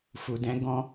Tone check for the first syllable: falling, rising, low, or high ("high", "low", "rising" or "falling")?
low